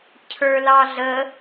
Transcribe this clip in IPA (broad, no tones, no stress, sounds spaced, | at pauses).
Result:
cʰ ə˞ l ɑ ɮ ə